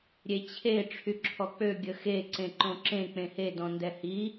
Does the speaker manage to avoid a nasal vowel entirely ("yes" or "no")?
no